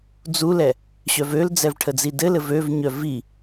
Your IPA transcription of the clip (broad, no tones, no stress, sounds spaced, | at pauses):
d͡z u l ɛ | ɕ œ v ø l d͡z ɛ v ʈʰ ə d͡z i d ɘ l ɘ v ø v ɲ œ v i